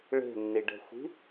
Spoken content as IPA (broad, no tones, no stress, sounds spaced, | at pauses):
ɭ e̤ nː i ɖ ɛ̤ xʷ i̤